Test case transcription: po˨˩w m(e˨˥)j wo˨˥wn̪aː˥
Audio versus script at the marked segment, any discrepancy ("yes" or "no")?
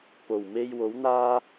yes